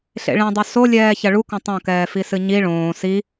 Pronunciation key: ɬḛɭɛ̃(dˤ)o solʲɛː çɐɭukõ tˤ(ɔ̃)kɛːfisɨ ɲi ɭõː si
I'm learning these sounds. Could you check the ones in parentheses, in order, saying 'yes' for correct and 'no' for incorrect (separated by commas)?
yes, no